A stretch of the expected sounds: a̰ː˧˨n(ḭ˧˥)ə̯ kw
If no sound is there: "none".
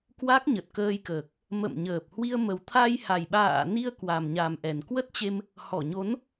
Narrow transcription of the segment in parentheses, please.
i˧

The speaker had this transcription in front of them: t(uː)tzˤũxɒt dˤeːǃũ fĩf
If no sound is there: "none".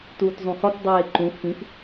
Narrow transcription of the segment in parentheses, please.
uː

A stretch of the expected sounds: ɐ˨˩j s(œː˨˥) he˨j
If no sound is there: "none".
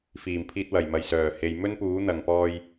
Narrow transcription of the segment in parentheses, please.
œː˨˩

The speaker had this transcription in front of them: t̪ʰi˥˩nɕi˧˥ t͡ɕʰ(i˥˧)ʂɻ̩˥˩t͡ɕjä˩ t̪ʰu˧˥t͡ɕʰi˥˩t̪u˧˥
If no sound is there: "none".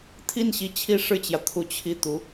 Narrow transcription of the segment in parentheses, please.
i˥˧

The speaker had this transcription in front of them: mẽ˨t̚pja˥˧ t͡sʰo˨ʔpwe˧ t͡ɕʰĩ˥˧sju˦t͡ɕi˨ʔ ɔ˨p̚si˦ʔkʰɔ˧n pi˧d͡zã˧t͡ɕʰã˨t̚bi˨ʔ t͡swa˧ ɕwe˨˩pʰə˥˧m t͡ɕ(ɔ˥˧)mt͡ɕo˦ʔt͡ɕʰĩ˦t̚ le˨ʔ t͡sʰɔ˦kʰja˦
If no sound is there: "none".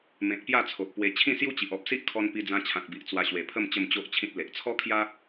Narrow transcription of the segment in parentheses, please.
ə˥˧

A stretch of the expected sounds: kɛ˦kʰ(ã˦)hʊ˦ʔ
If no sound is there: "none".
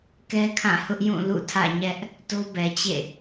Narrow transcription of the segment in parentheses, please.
ã˦˨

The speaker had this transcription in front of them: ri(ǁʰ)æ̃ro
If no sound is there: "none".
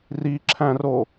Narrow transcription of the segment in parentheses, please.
ǁʰ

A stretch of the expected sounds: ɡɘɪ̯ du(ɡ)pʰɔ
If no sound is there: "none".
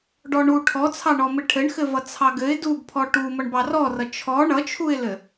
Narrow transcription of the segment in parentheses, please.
ɡ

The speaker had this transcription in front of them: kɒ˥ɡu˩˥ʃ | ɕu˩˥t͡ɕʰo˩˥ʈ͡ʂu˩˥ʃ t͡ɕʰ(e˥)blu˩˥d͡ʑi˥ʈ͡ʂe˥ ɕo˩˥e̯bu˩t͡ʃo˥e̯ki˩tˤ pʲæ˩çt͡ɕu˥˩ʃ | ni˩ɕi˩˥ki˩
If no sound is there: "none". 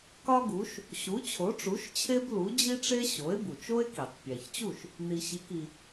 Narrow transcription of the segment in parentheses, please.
e˥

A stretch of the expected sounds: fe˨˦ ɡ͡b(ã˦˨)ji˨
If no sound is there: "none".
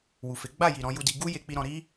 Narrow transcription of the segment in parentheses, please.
a˦˨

